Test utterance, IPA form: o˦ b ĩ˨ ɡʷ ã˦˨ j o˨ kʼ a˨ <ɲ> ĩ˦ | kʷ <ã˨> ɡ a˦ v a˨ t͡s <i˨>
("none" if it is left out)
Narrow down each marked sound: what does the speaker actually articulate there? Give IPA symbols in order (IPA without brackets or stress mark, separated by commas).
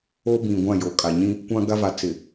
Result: ɲ, ã˦, ɪ˨